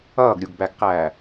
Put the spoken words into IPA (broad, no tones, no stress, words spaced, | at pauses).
ʌːɡɾʲuɡbæɡqæː